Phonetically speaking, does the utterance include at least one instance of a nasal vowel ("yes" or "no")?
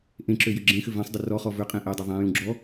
yes